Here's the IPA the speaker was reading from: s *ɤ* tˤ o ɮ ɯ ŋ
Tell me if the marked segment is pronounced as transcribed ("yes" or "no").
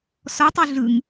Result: no